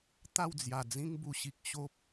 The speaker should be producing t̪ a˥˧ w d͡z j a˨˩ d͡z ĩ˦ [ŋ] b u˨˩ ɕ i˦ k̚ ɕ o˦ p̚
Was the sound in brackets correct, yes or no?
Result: yes